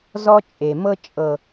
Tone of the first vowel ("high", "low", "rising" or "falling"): high